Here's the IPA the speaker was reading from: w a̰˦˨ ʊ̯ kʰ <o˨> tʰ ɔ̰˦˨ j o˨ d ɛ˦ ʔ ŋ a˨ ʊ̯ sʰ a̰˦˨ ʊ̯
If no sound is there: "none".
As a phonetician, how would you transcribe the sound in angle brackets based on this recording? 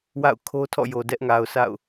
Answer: o˦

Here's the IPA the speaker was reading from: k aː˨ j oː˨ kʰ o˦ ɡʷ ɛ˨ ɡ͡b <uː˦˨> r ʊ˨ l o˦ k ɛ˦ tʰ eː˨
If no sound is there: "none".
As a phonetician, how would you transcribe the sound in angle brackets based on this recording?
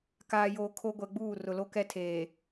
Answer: uː˦˨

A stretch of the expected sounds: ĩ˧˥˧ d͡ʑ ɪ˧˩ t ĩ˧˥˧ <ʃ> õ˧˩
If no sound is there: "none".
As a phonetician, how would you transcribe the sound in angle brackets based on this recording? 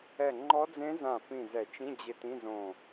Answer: z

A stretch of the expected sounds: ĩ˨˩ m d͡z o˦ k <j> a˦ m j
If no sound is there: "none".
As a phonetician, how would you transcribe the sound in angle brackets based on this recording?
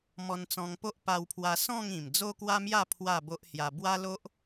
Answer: w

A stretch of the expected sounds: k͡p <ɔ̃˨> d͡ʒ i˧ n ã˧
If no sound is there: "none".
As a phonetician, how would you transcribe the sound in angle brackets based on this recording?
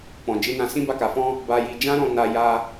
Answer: ɔ̃˨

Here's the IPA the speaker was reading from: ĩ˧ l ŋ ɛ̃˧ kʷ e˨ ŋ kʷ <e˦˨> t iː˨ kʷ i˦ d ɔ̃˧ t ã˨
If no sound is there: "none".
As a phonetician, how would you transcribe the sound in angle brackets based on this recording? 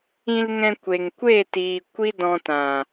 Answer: e˦˨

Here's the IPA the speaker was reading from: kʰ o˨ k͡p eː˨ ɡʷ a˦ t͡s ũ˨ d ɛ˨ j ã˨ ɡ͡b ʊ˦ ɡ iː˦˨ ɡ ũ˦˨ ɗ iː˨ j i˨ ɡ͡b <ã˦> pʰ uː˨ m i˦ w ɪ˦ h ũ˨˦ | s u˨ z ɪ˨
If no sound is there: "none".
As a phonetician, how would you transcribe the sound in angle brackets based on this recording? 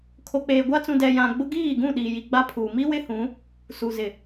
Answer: a˦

